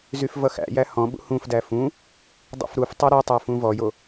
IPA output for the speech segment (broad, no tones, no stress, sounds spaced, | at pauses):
z y f v ʌ x æ̰ j æ h ɔ̃ ɓ ṵ h ũ f d æ f ũ | dˤ ṵ f ɾ u f tˤ y ɾ ʌ tˤ æ f ũ v ɔ j o